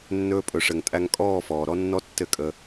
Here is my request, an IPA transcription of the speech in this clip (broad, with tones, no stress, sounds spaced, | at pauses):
nː ɵː˧ pʼ ɵ˩ ʂ ɘ˩ ŋ tʼ æ˧ ŋ kʼ ɔː˥˨ f ɔː˩ ɾ ɔ˥ nː ɔ˥ tː ɘ˥˨ kʼ ə˧